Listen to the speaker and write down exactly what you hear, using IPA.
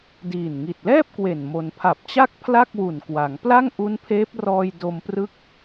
d iː˨˩ n ŋ i˨˩ t̚ l ɛː˥˩ p̚ k w e˨˩ n m o˩˦ n pʰ a˨˩ p̚ t͡ɕ a˥˩ k̚ pʰ l a˥˩ k̚ w u˨˩ n k w a˩˦ ŋ p l a˥˩ ŋ ʔ u˦˥ n pʰ eː˦˥ p̚ r ɔː˧ j d o˧ m p r ɯ˦˥ k̚

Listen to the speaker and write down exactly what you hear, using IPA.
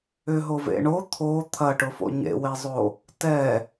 ʏ ɦ o v ḛ ɳ o t̪ʰ o t̪ʰ ɐ ʈ ʊ f o̰ ɲ ḛ w e zˤ o | t ɛ

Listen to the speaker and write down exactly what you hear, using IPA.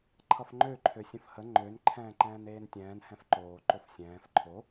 ǃʰ ʌ f ŋ͡ǃ ø ǃʰ ø sʲ ə̃ f h ə ŋ͡ǃ ø n ǃʰ ɛ̃ː ǃ ɛ̃ː n eː n tʲ ɛ̃ː n h ɛ̃ f ǃ oː ǃ o f sʲ ɛ̃ː f ǃʰ o

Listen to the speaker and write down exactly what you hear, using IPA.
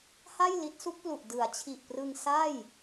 h a˥˩ j l i˦˥ t̚ s u˦˥ k̚ p l u˨˩ ʔ d ɯ˩˦ a̯ t͡ɕʰ i˨˩ ʔ p r ɯ˧ ŋ s a˥˩ j

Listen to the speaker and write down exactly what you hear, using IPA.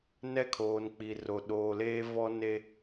n ɛ˦ kʰ oː˨ n k͡p i˨ r o˨ ɗ oː˨ l eː˦ v ɔ˦ n e˦

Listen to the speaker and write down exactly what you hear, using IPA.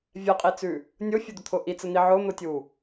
vʲ ɛ qʼ i t͡s ʉ | nʲ ʊ fʲ ə d̪ ʊ t̪ʰ ʊ ʔ i t͡s ə n̪ i ʕ ʊ n̪ ʊ tʲ u

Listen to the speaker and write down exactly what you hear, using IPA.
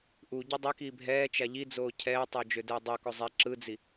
ʔ u ɟ u dˤ ɛ k iː bʱ ɛː t͡ʃ a ʎ i d͡z oː cʰ ɛː tˤ o d͡ʒ ø d ɛː dˤ u k o zˤ ɛ ǁ ɯ d͡z i

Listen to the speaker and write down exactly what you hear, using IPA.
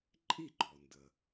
ǃʼ i˥˩ ɡ͡ǃ ɔ˩ n d ə˩

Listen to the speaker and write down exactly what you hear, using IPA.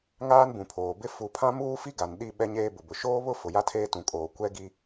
ŋ aː˦ n b ũ˨ pʰ oː˨ b ɪ˦ f u˨˦ pʰ ã˦ m uː˦ f i˦ ɡ a˨ n ɗ i˦˨ ɓ ɛ˦ ɲ eː˦ b ʊ˨ b ʊ˨ ʃ oː˦ β ʊ˦ f ʊ˨ j a˦ tʰ eː˦ t ũ˨ kʼ oː˨ kʷ ɛ˦ ɡ i˦

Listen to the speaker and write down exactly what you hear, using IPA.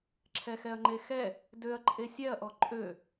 ǁʰ ɛ x ɛ ɐ̯ ŋ͡ǃ e x ɛ | d ø ɐ̯ ǃʼ e sʲ ɛ ɐ̯ ʔ ɔ ǃʼ ø

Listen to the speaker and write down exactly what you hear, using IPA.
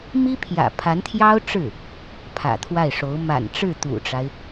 m i˥ pʰ j ä̰˨˩ pʰ a˧˥ n t̪ʰ j ɑ˥ ʊ̯ ʈ͡ʂ ɻ̩˥˩ | pʰ ä̰˨˩ t̪ʰ w a˥˩ ɪ̯ ʂ o˧˥ ʊ̯ m a̰˨˩ n ʈ͡ʂ ɻ̩˥˩ t̪ ṵ˨˩ ʈ͡ʂ a˦ ɪ̯

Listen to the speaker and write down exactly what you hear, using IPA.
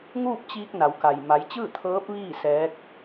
ŋ uː˥˨ p̚ t͡ɕ iː˧ k̚ n a˩˧ w k a˩ j m a˩˧ j t͡ɕ ɯː˥˨ t̪ʰ ɤː˧˥ p̚ ʋ iː˥˨ s ɛː˧˥ k̚

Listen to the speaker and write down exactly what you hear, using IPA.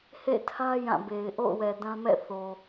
h ḛ˦˨ tʰ ä˦ j ã˦˨ b e˨ ɪ̯ ʔ o̰˦˨ ʊ̯ w ɛ˨ d ã˦ m ɛ̰˦˨ θ o˨

